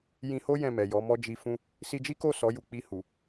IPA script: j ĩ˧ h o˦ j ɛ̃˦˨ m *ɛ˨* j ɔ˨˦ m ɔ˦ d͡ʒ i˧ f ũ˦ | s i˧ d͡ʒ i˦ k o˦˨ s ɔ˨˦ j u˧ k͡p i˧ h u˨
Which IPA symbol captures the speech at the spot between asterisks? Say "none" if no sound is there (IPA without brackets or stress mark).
ɛ˨